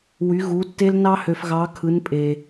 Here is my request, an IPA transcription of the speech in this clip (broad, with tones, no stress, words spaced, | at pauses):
wy˧˥ ɣu˧˥tːe˥l nɑ˥hø˧fɣɑ˧˥kʰɯ˧˥n pʼe˧